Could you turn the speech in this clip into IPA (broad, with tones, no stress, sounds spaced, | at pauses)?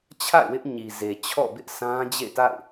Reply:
t͡ɕʰ a̰˦˨ ɪ̯ w ɪ˦ ʔ ɲ i˨ z e˨ t͡ɕʰ ɔ̰˦˨ b ɪ˦ ʔ sʰ ã˦ d͡ʑ ḛ˦˨ t a̰˦˨ ɪ̯